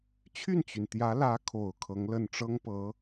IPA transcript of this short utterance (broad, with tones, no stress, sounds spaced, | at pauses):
t͡ɕʰ y˥˩ n t͡ɕ y˩ n t̪ j ä˧˥ l ä˧˥ kʰ o˨˩ ʊ̯ kʰ ɤ˧˥ ŋ l ə˥˩ n ʈ͡ʂ ɤ˥ ŋ p ɤ˧˥